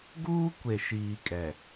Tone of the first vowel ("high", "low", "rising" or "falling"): high